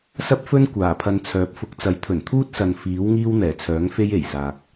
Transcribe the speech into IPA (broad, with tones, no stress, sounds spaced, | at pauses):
s ɐ˥ p̚ f ɵ˥ n kʷ aː˨˩ pʰ ɐ˧ n t͡sʰ œː˨˥ p̚ f ʊ˨˥ k̚ t͡s ɐ˨˥ j t̪ʰ ɵ˨˩ n t̪ʰ uː˥ t̚ s ɐ˨ n f iː˨˥ w ŋ iː˥ w n̪ ɛː˨˩ t͡sʰ œː˨˥ ŋ f e˥ j e˨˩ j s aː˨ k̚